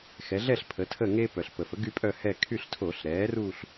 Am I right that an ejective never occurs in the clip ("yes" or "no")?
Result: no